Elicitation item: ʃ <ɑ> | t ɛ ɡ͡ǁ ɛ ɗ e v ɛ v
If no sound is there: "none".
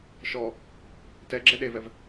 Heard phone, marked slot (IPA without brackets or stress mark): ɔ